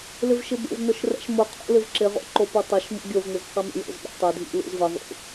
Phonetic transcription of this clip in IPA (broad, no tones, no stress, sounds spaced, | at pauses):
l ɪ v ʃ ɪ b o̰ v n ʊ ʃ r ɛ̰ ʃ m ʊ qʰ o̰ l ɪ v ǁ ɪ ʁ o̰ ǃ o p u tˤ ɪ ʃ m ṵ ɡʲ o v n̪ ɪ z q i m ɛ̰ j o̰ z ɓ ḛ tˤ ɪ dʱ ḭ l ṵ z v ɪ ðˤ ṵ